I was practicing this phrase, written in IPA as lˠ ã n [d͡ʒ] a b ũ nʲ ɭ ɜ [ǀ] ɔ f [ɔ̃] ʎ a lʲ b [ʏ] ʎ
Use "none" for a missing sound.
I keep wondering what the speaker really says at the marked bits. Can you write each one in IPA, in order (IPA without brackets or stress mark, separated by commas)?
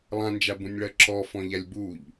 d͡ʒ, ǁ, ɔ̃, u